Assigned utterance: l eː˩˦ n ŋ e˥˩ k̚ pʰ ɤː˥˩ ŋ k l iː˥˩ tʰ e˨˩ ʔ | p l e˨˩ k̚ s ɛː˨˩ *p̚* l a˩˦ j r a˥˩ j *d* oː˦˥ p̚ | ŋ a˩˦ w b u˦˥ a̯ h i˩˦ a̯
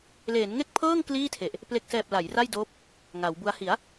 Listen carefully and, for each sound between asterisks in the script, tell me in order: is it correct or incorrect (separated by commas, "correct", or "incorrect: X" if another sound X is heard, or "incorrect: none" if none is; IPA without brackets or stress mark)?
correct, correct